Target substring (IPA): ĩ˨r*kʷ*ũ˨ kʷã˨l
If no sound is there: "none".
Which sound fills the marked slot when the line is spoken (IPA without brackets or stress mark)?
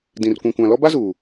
kʷ